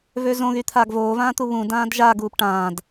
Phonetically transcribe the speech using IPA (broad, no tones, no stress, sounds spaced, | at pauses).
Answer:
v ø z õ ɣ y t̪ʰ aː ɡ v oː v ãː t̪ u β ũ d ãː d ʒ a ɡ uː p ʈ ãː d